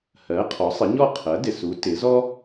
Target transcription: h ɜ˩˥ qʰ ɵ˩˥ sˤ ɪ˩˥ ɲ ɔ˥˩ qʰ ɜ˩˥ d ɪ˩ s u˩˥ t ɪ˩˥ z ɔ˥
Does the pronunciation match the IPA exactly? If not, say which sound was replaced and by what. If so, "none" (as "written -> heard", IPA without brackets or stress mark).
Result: ɵ˩˥ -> ɔ˩˥